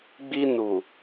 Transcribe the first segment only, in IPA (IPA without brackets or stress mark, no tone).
ɡ͡b